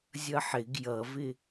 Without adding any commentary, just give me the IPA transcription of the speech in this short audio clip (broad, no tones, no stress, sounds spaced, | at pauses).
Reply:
zʲ ʌ ħ ɪ ɡ j ʌ v ɪ